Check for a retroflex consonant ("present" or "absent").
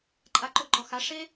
present